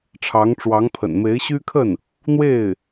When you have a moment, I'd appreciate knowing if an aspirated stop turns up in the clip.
yes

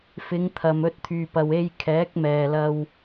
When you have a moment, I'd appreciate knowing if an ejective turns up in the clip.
no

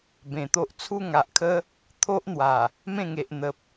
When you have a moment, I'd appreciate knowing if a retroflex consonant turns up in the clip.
no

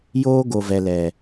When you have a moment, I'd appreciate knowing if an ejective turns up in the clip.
no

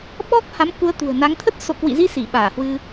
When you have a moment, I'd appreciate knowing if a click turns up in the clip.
no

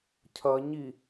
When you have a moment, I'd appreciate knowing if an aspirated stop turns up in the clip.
yes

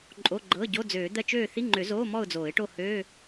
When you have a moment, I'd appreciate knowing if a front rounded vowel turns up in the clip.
yes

